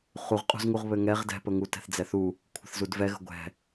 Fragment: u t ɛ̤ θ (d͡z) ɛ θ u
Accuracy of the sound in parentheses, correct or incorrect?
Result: correct